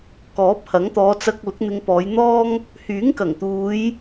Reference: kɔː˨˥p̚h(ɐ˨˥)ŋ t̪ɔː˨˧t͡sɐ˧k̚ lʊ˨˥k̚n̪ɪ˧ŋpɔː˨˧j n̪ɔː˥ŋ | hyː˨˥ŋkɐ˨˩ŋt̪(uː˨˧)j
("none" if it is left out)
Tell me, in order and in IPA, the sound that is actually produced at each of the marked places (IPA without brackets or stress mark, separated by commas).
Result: ɐ˨˥, uː˨˧